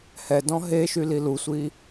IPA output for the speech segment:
h ɛ d ɔ̃ ɦ e ʃ y l i l u sʷ i

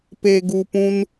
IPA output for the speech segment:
p e˧ ɡ u˧ p ũ˦ n

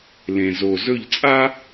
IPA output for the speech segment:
l ẽ˨ z o˨ z ɵ˦˨ ʎ t͡sʼ a˦

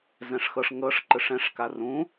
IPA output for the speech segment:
z ɛ̃ ʂ x ɤ ʂ ŋ ɤ ʂ ǃ ɯ ʂ ɛ̃ ʂ k a r ũ

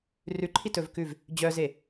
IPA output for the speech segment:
r ʉ ǃʰ i t ɵ v k ʉ v | d͡ʑ œ z e

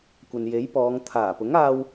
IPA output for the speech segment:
kʷ ɐ˨ n j e˨˥ j p ɔː˨˧ ŋ t̪ʰ aː˨˩ p ʊ˨˥ ŋ aː˧ w

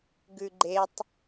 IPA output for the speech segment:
ɡ ʉ ɡ͡ǃ e tˤ

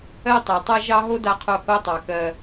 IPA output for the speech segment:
ɜ˦ tˤ ɛ˨ tˤ a˦ ʒ ɑ˦ ɦ o˦ d a˦ qʰ o˦˨ h o˦ tˤ ɑ˨ k ɜ˦

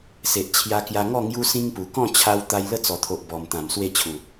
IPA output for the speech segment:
s e˨ ʔ t͡ɕʰ j a˧ k j a˧ ŋ ɔ˥˧ ŋ j u˦ s ĩ˦ ŋ p u˨˩ k ɔ̃˥˧ t͡ɕʰ a˧ w t̪ a˧ j l ə˥˧ t͡s ɔ˨˩ t̪ʰ o˨ ʔ b ɔ˨˩ m t̪ ã˨˩ m s w e˥˧ t͡ɕʰ u˨˩

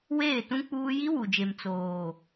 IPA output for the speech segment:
w eː˦˨ t ũ˦ k͡p uː˦ j i˦ w u˨ d͡ʒ e˨ m t͡s oː˨

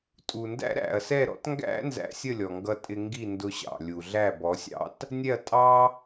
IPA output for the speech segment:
tʼ u˨ n d æ̰˦ ɾ æ̰˨ ɐ̯ s ɛ˦˨ ɾ ɔ̰˨˦ t ŋ ɡ æ̰˦ n z æ̰˧ sʲ ə˦˨ lʲ ɔ˨ ŋ ɡ ʌ˧ tʼ ɪ˧ ŋ ɡ i˦˨ n d ʊ˧ ɕ ɑ̰˨ lʲ u˨ ɮ æ˦˨ b ɔ˨˦ sʲ ɑ̰˦ t | nʲ ɛ˦˨ ɐ̯ tʼ ɑ˦

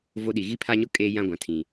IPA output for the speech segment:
v o˦ ɗ i˨ ɣ i˦ pʰ a˦ ɲ ʊ˦ kʼ eː˦ j ã˦ ɡʷ ã˨ tʰ ĩ˨

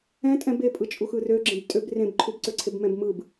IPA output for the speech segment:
ɛ̃ tʼ ɛ̃ b e pʼ ɯ t͡ʃʼ u x ɯ r ø ɡ͡ǁ ẽ b tʼ ø b r ẽ b ǃʰ u b ǀ ø ǀʰ e b m ɛ̃ b m ɯ b

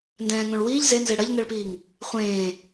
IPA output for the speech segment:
n d ɛ̃ː ŋ õ ɭ w iː ʎ z e n z e ɽ ɐ ʎ n ɛ ɭ p iː ŋ | χʷ ẽː

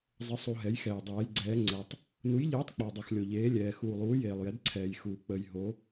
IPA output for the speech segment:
zˤ ə˨˦ sˤ u˨ ɦ ɛ˨˦ j x ɛː˨ dˤ ɛː˨˦ j ɡ͡ǀ ɛː˨˦ ŋ͡ǀ ɛ˨ tˤ | n u˨˦ j ʎ eː˨˦ tˤ k͡p ɔ˨ dˤ u˨ x lʲ o˨ ʎ eː˨˦ lʲ ɛː˨ x uː˨ lˠ uː˨˦ j eː˨ lˠ j ɛ˨˦ d ǀʰ ɛː˨ j x uː˨ k͡p ə˨ j ɦ o˨˦

